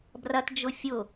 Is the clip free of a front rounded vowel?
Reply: yes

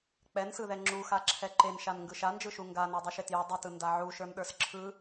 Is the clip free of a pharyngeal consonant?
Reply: no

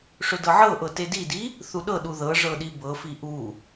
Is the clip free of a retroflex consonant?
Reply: no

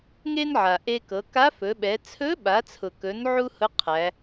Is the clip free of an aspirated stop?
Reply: no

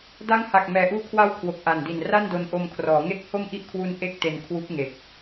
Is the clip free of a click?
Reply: yes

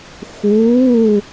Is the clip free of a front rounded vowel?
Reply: yes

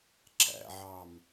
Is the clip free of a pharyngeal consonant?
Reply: no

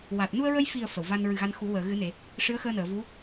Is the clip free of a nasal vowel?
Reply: yes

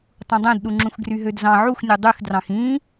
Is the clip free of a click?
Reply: no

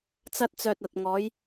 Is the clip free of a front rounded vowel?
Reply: no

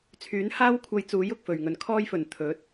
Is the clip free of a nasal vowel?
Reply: yes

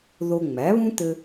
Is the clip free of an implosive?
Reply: yes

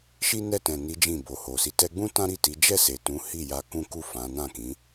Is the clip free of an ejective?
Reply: yes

